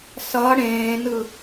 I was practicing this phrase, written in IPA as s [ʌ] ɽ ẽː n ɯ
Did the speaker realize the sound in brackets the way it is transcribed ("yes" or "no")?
yes